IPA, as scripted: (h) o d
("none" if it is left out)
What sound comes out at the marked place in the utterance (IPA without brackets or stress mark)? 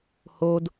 h